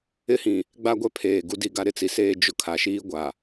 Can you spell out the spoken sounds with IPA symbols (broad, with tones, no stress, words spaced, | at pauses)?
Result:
ɪ˦hĩ˨ | ɡ͡ba˦ɡʷɛ˦ pʰeː˨ ɡu˦di˦ɡa˦ ɾɪ˦t͡si˨seː˦ d͡ʒʊ˦ kʰa˨ʃiː˦ɡʷa˨